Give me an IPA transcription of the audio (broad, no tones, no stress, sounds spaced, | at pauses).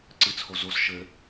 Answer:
ǀ ɨ t͡sʰ o z o s ʃ ɘ